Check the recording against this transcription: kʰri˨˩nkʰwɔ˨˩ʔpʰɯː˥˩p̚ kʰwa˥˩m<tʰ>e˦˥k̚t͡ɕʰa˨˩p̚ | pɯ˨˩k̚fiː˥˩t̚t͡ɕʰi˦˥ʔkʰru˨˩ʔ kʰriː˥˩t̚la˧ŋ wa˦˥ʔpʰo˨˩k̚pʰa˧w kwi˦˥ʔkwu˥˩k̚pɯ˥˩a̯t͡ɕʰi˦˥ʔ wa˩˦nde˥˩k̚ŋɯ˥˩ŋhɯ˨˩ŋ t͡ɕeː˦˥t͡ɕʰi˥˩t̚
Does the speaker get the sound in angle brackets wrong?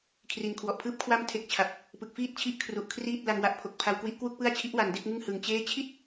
no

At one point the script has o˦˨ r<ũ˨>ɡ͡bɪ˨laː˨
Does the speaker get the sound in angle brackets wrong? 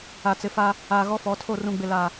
no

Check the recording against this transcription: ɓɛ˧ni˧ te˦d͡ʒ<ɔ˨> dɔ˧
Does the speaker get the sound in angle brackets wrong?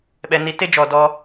no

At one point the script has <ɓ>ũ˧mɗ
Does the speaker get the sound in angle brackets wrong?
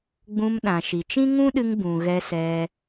yes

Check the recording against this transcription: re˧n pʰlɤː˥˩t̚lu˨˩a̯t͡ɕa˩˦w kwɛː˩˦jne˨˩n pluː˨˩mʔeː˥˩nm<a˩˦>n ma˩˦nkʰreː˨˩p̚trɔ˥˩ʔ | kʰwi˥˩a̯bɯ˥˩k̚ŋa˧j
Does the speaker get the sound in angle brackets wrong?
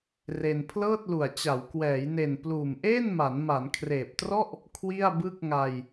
no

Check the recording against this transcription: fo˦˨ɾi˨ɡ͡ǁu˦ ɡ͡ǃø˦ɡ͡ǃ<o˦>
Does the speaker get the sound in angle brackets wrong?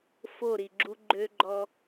yes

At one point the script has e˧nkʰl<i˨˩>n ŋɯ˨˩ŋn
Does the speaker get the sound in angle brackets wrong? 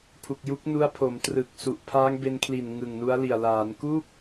no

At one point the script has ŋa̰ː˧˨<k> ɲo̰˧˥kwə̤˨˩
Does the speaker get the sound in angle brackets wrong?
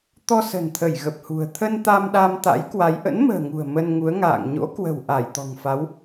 yes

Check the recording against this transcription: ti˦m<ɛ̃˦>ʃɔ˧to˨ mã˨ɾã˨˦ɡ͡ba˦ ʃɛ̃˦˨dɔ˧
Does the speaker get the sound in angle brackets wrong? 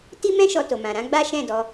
no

